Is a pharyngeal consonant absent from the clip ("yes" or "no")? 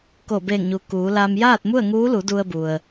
yes